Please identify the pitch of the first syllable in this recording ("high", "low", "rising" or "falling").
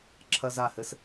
high